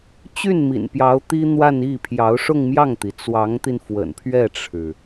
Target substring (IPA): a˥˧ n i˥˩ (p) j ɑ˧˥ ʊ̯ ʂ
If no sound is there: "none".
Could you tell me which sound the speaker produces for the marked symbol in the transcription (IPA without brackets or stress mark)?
pʰ